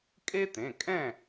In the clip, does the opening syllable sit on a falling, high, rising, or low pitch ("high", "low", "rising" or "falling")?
high